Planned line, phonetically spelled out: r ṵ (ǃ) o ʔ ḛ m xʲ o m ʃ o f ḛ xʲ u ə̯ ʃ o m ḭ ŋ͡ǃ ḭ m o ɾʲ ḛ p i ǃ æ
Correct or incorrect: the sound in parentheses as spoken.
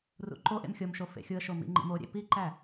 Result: correct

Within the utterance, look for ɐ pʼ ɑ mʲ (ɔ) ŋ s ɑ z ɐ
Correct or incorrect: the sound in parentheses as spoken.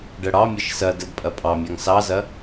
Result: incorrect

